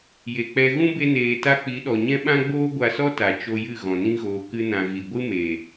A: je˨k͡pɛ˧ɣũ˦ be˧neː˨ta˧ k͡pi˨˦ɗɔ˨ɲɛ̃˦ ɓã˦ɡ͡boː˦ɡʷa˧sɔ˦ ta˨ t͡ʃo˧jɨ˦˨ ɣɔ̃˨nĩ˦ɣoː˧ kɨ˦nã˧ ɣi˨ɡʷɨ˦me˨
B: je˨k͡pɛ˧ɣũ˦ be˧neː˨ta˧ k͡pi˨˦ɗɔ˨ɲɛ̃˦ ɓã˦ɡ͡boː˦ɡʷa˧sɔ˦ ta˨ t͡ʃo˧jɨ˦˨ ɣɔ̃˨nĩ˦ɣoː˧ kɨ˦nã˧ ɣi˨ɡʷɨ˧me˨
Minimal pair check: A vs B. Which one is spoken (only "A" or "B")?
A